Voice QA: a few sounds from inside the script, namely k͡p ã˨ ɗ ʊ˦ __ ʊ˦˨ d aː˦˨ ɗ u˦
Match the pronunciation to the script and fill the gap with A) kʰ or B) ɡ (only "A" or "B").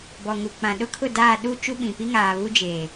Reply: A